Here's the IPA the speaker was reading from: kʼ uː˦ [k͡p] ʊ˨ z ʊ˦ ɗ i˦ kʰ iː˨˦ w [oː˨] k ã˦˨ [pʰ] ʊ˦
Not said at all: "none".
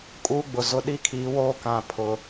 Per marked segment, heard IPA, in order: ɡ͡b, oː˦, pʰ

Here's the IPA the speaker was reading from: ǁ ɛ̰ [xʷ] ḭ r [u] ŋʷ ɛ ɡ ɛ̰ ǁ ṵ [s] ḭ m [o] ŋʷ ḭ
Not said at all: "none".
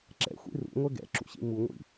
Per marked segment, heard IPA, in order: xʷ, ṵ, ɕ, u

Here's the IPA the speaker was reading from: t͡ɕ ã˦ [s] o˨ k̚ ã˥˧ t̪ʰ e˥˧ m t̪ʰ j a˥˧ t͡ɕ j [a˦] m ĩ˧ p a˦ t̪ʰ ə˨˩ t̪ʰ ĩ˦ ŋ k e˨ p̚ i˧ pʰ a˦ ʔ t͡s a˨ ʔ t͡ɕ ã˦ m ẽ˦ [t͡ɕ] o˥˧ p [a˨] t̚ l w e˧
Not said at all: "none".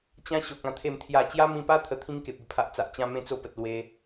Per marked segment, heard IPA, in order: ɕ, a˦, t͡s, ə˨

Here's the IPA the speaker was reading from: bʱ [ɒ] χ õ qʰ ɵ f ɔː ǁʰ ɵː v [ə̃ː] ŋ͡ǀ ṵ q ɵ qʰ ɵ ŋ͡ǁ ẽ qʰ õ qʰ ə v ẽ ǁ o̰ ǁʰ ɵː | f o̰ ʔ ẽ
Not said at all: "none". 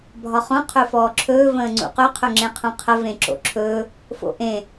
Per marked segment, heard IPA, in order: ɒ, ə̃ː

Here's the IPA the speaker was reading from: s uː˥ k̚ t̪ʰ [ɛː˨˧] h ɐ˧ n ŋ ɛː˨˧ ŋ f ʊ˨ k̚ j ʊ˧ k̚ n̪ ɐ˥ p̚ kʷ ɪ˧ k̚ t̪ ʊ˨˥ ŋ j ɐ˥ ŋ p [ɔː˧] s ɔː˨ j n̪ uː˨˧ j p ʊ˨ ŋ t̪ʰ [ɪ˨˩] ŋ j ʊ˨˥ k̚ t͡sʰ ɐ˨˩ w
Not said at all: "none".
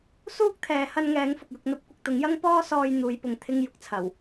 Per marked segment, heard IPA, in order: ɛː˨˧, ɔː˧, ɪ˧

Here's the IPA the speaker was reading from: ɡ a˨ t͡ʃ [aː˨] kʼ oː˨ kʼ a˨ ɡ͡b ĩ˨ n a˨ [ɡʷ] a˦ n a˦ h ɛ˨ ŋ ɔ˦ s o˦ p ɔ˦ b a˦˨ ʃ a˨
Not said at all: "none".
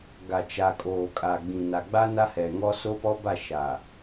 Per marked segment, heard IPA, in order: a˨, ɡ͡b

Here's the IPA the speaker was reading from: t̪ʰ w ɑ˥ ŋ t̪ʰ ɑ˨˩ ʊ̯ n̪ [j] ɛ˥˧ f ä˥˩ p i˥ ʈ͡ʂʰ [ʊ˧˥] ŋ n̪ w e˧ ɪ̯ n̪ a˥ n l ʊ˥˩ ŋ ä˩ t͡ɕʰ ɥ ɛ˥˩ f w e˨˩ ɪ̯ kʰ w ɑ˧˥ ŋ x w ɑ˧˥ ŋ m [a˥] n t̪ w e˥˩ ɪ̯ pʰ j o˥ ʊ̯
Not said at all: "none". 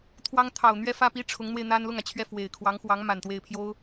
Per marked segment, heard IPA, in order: ɥ, ʊ˧˥, a˨˩

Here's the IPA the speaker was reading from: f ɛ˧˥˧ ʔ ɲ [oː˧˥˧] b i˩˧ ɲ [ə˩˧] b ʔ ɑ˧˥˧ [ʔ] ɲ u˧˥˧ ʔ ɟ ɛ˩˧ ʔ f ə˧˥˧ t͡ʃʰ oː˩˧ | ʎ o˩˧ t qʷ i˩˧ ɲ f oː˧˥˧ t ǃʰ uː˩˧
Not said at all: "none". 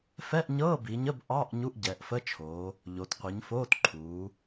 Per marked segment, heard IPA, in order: ɤː˧˥˧, ə˧˥˧, ʔ

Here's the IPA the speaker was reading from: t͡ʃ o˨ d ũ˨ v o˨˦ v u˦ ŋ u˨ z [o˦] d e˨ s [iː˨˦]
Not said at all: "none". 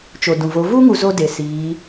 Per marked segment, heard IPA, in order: o˦, iː˨˦

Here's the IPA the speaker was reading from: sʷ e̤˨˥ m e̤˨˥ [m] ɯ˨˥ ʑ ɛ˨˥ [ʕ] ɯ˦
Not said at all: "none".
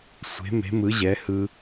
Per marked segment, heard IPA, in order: m, h

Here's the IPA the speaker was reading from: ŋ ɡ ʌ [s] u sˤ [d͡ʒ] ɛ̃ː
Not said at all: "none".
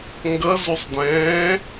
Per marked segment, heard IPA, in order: z, d

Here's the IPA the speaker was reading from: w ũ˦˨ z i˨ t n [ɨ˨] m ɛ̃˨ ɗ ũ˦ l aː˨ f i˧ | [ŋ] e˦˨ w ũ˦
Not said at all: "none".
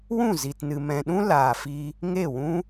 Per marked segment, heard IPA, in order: ɨ˨, ŋ

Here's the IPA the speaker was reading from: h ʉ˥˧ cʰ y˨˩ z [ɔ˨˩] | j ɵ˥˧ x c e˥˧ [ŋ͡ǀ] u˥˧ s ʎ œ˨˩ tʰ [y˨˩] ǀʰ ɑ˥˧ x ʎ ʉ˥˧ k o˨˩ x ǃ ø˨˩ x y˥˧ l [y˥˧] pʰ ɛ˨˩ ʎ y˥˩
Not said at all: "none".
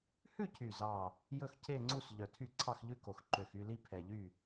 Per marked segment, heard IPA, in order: ɑ˨˩, ŋ͡ǀ, y˥˩, i˥˧

